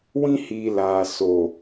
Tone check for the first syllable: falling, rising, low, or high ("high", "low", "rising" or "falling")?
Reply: high